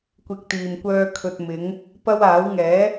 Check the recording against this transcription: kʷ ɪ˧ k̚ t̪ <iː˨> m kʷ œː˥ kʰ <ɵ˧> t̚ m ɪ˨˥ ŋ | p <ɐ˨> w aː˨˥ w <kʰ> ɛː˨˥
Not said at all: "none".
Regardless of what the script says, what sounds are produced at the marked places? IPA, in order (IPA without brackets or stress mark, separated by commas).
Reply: iː˨, ɵ˧, ɐ˥, ŋ